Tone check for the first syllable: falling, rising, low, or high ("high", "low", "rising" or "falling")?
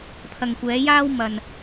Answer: low